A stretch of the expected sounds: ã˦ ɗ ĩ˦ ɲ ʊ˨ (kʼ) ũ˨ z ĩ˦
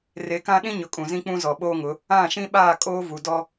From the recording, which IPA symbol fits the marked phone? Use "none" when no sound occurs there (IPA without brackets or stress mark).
kʼ